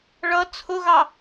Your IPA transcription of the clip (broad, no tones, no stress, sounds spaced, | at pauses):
ɭ ʌ t͡sʰ ʊ ɣ ɑ